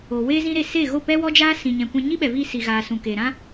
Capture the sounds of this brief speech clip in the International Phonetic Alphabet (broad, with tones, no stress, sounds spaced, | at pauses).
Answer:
o˨ w eː˦ z ĩ˦ ɾ e˧ s e˦˨ ɣ o˦˨ p ɛ˦ w ɔ˦ d͡ʒ aː˦ s ĩ˨ ɲ ɛ̃˨ kʷ ɛ̃˧ ɲ i˦ ɓ ɛ˨ v i˧ s i˨ ɣ aː˨ s ũ˨ k eː˨ ɾ ã˦